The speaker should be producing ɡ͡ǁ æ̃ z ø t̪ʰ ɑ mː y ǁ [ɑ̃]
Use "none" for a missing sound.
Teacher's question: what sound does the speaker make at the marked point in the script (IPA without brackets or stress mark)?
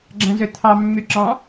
ɑ̃